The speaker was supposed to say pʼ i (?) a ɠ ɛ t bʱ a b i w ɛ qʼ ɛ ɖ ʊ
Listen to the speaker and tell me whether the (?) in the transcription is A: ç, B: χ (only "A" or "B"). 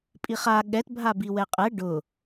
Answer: B